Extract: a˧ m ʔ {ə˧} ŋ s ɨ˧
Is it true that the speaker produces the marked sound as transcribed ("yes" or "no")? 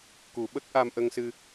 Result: yes